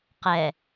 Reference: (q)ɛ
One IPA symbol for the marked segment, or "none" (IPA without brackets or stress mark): q